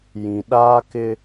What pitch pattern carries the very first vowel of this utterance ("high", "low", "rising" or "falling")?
low